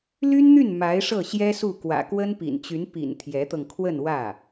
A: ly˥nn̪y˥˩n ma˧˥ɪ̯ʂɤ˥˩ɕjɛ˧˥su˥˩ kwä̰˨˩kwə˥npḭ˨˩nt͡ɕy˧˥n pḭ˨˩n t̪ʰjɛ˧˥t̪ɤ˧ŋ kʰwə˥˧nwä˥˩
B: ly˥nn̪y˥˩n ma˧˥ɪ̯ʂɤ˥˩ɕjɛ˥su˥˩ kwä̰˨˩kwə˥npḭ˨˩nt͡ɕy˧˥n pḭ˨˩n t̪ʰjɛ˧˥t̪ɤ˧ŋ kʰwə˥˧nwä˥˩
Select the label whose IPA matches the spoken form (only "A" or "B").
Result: B